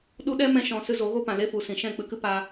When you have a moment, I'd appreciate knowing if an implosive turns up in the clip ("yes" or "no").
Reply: yes